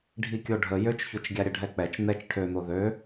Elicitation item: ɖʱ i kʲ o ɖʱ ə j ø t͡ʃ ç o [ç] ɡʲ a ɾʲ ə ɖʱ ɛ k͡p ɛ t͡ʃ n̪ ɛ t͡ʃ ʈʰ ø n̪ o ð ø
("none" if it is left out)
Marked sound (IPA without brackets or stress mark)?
t͡ʃ